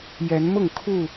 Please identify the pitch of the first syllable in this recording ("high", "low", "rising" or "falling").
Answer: rising